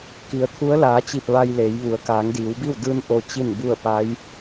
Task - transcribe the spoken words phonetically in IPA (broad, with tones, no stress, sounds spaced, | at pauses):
k i˩˧ ə̯ t̪ʰ u˧˥ ə̯ l aː˩˧ t͡ɕ i˧˩ p̚ ʋ a˧ j l eː˩˧ j ʋ u˩˧ ə̯ k aː˩˧ ŋ d iː˩˧ w b i˥˨ w d ɯː˧ n ʔ o˧ t͡ɕ i˥˨ n b u˥˨ ə̯ p a˧˥ j